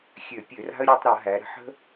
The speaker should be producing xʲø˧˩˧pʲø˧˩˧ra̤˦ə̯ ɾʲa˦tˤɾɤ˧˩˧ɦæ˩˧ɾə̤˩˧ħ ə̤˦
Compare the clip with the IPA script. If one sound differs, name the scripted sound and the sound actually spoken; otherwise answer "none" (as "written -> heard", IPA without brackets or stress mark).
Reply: none